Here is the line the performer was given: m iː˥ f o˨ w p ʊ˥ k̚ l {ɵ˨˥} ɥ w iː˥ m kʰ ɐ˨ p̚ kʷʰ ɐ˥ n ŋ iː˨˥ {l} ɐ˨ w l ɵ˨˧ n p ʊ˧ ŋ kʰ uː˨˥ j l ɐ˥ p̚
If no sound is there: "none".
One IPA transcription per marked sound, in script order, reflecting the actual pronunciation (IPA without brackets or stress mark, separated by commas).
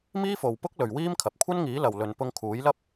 ɵ˨, l